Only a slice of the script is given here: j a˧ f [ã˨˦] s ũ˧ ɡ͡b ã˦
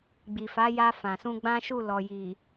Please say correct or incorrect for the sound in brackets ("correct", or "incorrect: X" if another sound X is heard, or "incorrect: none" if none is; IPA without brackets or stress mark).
incorrect: ã˨